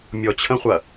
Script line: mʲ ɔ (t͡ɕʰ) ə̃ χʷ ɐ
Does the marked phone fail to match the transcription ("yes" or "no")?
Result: no